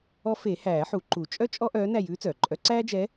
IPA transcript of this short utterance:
ɔ˧˥ f e˨˩˦ h æː˨˩˦ ħ u˨˩˦ ǃ u˨˩˦ t͡ʃʼ œ˥ t͡ʃʼ ɔ˥ ʔ œː˧˥ n æ˦˨ j ʉː˧˥ t͡s œː˩ ǃʼ œ˧˥ ǀ æː˥ d͡ʒ ɛ˧˥

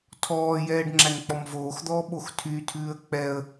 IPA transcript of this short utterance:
tʰ ɔː j ɛː ɖ ŋ͡ǁ æ n k͡p ɔ m v oː x d̪ ɔː ɓ o x tʰ y tʰ ʉː ə̯ k͡p ɛ ə̯

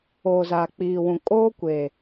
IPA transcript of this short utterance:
oː˨ z aː˨ k͡p iː˨ w ũ˨ kʼ oː˦ kʷ eː˨

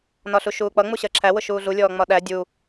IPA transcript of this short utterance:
n ɒ ɬ u ʃ uː k͡p ʌ ŋ͡m u ɕ ɜ ǁʰ æ w ʊ ʃ uː ɮ u lʲ ɔː ŋ͡m ɒ ɗ æ dʲ u

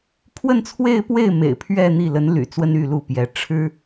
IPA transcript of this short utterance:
pʰ w ə˥˧ n t͡sʰ w e˥˧ ɪ̯ p w e˥˩ ɪ̯ m ḛ˨˩ ɪ̯ pʰ ɥ ɛ˥˧ n̪ i˥˩ l ə˧˥ n l y̰˨˩ t͡s w ə˥ n y˥˧ l u˥˩ p j ɛ˧˥ ʈ͡ʂʰ ɻ̩˥

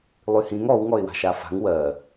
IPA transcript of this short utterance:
lˠ y h ĩ ŋ ɔ w ŋ ɔ ɪ̯ w a̤ ʃ a f a̤ ŋ w ɜ

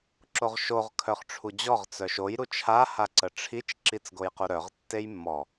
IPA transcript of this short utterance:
ǁ o ʁ ʃ o ʁ kʰ œ χ ʈ͡ʂʰ u d͡ʑ ɔ ʁ t͡s œ ʃ o j ɾ u t͡ʃʰ a h a ǀ ə ʈ͡ʂʰ i t͡ʃ ǁ i t͡s ɡ o j q u ɾ œ ʁ tː e j mː ɔ

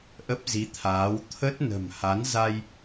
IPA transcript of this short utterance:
ʔ ə˦˥ p̚ z i˨˦ t̪ʰ aː˨˦ w t̪ʰ ə˦˥ t̚ n ə̤˨˩ m h a˨˦ n z a˧ j

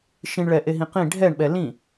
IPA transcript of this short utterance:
ʃ ĩ ɳ ɭ ɛ ʔ e ɦ ĩ q ĩ ɖʱ ɛ ɳ ɓ ɛ l ĩ

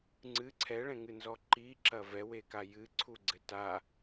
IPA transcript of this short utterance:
ŋ͡ǀ ɨ ǀʰ ɛ ɭ ɛ̃ ŋ ɨ n z ɔ ǃ i ǁ ɐ v ɛ w e k a j ɨ ǀʰ u ɡ͡ǀ ɘ t a

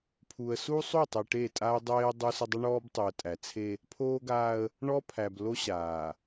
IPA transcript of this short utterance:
pʰ u˨ ə̯ s u˦ sˤ u˦˨ tˤ e˨ ʈ e˦˨ tʼ a˦ ə̯ dˤ eː˦ ə̯ dˤ u˦ s ə˦ dˤ ə˦ ɳ ɔː˦ b tˤ u˨ ə̯ tʼ æ˨ t͡sʰ e˦ | pʰ oː˦ ɡ aː˦ ə̯ | ɳ ɔ˦ pʰ æ˨ b l o˦ ɕ aː˨

